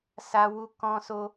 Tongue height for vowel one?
low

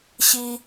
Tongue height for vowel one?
high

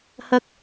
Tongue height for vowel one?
low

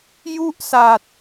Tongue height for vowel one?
high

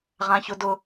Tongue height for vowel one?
low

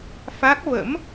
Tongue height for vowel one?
low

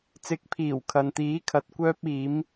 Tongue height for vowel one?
high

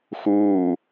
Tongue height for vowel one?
high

